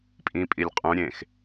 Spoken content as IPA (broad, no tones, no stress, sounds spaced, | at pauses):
pʼ ĩ pʼ i lʲ qʼ ũ ɾʲ ẽ x